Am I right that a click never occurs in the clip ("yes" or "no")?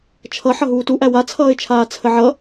yes